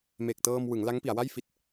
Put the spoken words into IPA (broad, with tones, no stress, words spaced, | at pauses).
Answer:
me˨˩k̚tɤː˧mwɯ˩˦ŋ la˦˥ŋpi˩˦a̯wa˥˩j fi˦˥t̚